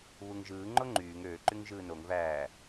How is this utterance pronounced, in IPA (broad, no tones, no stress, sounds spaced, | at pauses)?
β u ŋ ʒ ɯː ŋ͡ǃ o ŋ͡ǃ yː ŋ øː ǃ y ŋ ʒ ɯː n o ŋ v æː